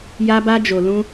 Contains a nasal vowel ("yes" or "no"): yes